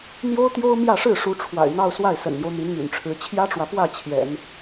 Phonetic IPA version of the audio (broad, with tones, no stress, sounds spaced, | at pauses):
n̪ j o˥ ʊ̯ t̪ j o˥ ʊ̯ m j ä˥˧ ʂ ɻ̩˥˩ ʂ u˧˥ ʈ͡ʂʰ w a̰˨˩ ɪ̯ n̪ ɑ˥˧ ʊ̯ s w a˥˩ ɪ̯ s ə̰˨˩ n n̪ j o˦ ʊ̯ n̪ i˧˥ n m y̰˨˩ n ʈ͡ʂʰ ɻ̩˧˥ t͡ɕʰ j ä˥ ʈ͡ʂ w ä˨ p w ä˥˩ t͡ɕʰ j ɛ̰˨˩˦ n